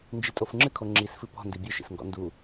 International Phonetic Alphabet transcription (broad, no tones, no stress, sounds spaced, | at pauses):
n d͡ʒ i tʼ o f ŋ͡ǁ ɨ kʰ o ŋ͡ǁ i s f ɨ p ɔ̤ n d i bʲ ɨ ʃ ḭ s ŋ ɡ ɔ̰ n d u